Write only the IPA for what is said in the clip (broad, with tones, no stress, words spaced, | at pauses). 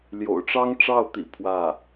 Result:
ljo̰˨˩ʊ̯ʈ͡ʂɑ˥ŋ ʈ͡ʂɑ˥˩ʊ̯t̪ḭ˨˩ pʰwä˥˩